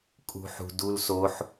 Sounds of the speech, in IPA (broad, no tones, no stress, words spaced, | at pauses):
kʼṳħṳdulsoħ